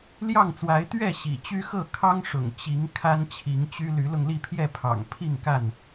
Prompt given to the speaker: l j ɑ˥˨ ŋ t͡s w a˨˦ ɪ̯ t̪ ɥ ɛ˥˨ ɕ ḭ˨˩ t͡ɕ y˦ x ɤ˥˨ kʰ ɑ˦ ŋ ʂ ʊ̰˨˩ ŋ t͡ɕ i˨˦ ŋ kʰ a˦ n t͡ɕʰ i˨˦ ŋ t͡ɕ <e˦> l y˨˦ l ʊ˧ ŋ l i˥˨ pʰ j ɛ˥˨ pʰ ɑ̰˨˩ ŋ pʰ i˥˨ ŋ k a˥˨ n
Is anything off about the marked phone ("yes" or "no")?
yes